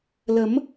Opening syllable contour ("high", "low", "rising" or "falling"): rising